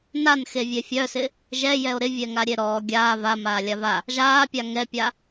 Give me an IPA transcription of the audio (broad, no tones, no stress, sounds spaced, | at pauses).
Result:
n a n x e vʲ e fʲ œ s ɪ | ʒ ɛ j ɛ o̯ ɾ ɪ vʲ ɛ ŋ a ɾʲ e ɾ ɔː ɡʲ aː v a m aː lʲ a v a | ʒ aː pʲ a ŋ ɛ pʲ a